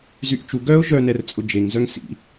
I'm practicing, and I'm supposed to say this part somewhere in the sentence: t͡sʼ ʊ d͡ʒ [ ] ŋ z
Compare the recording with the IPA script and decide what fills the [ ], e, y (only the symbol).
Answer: e